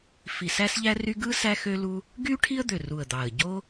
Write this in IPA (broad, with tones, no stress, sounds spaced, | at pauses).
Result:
f i˨˩ s æ˥ s ʎ æ˥ r y˥ ɡ ɯ˥ s æ˥ x ø˥ l u˥ | ɡ y˥ ʈʰ i˥ ə̯ d̪ ø˨˩ r u˨˩ ə̯ d̪ ɑ˨˩ ə̯ ɟ o˥